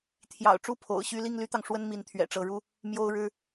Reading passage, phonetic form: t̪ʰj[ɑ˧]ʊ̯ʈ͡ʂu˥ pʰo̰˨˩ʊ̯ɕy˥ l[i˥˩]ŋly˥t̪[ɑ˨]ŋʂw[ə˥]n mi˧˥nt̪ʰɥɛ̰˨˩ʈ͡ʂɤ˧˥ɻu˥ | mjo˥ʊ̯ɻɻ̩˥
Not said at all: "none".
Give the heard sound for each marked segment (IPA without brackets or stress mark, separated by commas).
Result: ɑ̰˨˩, i˥˩, ɑ˨, ə˥